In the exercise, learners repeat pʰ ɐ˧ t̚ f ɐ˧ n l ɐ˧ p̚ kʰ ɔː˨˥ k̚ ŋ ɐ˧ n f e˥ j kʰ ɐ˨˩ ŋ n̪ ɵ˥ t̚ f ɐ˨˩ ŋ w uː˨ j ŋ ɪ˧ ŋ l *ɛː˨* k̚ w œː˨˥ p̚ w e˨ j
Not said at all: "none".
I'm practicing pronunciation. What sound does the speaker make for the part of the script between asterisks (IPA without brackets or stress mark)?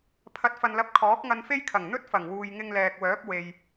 ɛː˨